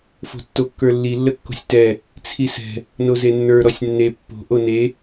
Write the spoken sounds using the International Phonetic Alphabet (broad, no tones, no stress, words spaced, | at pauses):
fo̤tːokːə˞lːi lːəkːo̤sʲtɛ | t͡sʰisɛ̤ | nozenːə˞ ɾɔsʲnːe pːo̤ ʔone